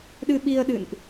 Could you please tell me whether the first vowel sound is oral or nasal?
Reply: oral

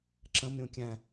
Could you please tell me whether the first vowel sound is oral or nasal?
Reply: nasal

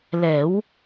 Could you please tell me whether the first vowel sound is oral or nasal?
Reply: oral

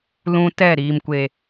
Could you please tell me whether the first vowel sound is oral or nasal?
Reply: nasal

